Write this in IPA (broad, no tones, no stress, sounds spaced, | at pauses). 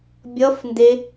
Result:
bʲ ʌ f n d e